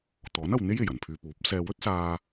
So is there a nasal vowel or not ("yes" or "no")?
no